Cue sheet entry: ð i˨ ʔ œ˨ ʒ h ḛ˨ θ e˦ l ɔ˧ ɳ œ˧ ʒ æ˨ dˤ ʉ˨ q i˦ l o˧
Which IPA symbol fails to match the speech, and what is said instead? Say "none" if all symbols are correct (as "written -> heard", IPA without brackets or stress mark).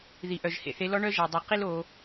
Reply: e˦ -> e˧